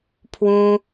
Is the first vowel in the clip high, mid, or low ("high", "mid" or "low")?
high